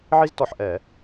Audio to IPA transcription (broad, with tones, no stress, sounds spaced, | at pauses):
ʕ i˥ z t ɔ˧˩ ħ ʔ ɛ˧˩˧